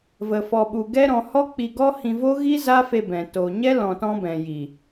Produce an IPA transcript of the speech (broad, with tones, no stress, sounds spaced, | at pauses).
v ə˧ f ɔ˧ ɓ u˧ ɡ ɛ˦ ɾ ɔ̃˧ h ɔ˦ k͡p i˧ ɡ ɔ˦ h ĩ˧ v o˦ ɣ i˦ z a˦ f e˧ b ɛ̃˨ t oː˨ ɲ ɛ˦ l ɔ̃˧ t ɔ̃˦ b ɛ̃˨ j i˨